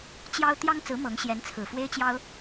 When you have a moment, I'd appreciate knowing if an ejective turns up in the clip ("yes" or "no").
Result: no